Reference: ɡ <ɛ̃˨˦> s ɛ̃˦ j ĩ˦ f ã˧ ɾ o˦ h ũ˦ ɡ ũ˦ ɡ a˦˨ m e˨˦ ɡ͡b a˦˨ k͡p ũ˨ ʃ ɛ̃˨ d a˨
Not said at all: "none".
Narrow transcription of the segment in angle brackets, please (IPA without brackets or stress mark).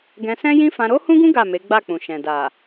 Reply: ɛ̃˧